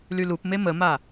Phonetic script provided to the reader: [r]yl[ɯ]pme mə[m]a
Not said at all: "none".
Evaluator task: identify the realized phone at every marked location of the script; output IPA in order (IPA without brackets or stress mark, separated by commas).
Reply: l, u, m